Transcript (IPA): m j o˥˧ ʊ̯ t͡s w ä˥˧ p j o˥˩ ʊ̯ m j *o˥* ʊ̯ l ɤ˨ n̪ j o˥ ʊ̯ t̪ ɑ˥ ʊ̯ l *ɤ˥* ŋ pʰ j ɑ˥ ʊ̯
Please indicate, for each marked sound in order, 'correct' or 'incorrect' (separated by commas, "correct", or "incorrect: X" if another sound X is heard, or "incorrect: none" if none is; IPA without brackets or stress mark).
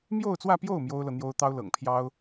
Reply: correct, incorrect: ɤ̰˨˩